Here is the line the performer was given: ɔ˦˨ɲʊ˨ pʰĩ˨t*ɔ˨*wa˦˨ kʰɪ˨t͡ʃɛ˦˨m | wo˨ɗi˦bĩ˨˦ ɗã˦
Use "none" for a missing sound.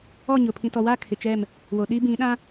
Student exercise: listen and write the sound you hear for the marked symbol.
ɔ˨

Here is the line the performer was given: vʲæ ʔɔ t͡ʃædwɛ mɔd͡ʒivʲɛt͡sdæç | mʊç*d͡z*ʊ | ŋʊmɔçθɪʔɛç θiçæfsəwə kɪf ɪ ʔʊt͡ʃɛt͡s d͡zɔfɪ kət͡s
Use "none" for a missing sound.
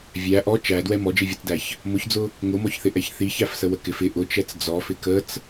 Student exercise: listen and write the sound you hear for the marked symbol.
d͡z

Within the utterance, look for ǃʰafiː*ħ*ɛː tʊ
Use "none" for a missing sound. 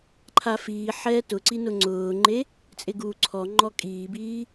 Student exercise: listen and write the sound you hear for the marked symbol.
ħ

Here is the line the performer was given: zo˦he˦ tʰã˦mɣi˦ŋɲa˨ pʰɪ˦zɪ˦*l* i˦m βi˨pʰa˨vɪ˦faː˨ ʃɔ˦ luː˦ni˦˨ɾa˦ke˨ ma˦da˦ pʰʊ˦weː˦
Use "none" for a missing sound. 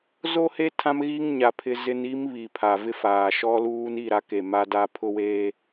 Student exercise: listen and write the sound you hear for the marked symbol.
n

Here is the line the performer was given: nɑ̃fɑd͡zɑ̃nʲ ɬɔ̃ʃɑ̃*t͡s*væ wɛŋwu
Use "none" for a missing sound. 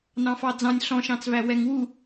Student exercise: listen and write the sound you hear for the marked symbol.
t͡s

